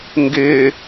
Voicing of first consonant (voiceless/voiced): voiced